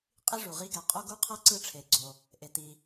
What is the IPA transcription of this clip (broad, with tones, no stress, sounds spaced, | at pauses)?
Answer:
qʼ i˥ ʐ u˩ ʁ i˥ ɡ ɛ˩ qʼ o˥ ɡ u˥ qʰ ɤ˥ ǀ ɯ˥ ʈ͡ʂʰ e˩ ɡ͡ǀ o˩ | ʔ e˩ t i˩